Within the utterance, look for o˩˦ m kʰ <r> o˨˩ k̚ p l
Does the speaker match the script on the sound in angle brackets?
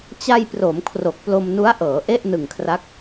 yes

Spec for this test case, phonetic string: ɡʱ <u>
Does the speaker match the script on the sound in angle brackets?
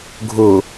no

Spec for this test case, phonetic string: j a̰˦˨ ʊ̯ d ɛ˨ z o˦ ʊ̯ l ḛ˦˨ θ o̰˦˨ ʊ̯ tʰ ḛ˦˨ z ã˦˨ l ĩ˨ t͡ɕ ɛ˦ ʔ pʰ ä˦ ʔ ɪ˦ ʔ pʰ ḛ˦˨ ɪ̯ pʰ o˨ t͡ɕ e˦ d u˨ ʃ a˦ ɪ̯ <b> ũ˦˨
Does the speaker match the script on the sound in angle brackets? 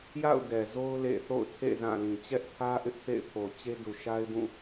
yes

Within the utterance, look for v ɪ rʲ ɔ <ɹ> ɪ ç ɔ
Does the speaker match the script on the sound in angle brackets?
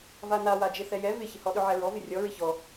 yes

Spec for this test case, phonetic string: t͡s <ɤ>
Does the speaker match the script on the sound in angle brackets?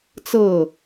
yes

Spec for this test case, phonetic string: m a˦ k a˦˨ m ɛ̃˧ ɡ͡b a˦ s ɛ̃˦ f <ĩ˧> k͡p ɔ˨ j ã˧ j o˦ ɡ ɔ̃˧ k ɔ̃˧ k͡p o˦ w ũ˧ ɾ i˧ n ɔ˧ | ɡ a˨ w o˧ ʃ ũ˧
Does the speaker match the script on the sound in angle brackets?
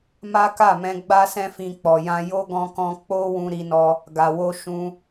yes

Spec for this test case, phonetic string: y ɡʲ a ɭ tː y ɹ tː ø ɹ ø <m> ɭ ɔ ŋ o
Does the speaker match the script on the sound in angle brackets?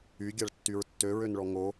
no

